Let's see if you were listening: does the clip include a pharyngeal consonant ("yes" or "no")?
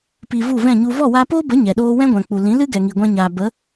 no